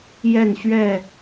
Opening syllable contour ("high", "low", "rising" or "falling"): falling